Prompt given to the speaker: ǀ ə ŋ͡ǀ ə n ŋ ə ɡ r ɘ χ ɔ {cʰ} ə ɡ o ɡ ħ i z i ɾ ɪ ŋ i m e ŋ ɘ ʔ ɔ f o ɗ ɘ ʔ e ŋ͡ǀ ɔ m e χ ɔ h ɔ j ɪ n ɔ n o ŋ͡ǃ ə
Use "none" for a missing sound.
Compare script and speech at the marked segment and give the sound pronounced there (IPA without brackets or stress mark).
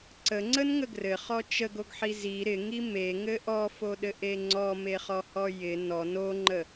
t͡ʃ